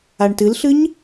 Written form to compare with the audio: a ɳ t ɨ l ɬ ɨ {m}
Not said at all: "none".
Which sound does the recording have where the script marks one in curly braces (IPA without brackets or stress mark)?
ɲ